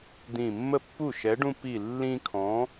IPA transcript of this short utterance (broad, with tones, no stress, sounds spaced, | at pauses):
d̪ ĩ˧˩ mː ə˥˩ pː u˥˩ ʃ ɛ˨˥ ɖ ũ˦ p i˧˩ lː ĩ˦ kʰ ɔ̃˨˥